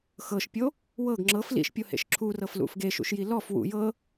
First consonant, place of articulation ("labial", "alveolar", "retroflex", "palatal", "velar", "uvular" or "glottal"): velar